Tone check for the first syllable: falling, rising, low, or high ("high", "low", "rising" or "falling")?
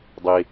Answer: low